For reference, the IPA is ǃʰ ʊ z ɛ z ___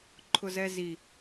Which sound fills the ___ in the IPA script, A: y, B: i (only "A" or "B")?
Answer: B